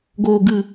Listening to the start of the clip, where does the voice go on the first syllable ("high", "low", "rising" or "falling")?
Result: low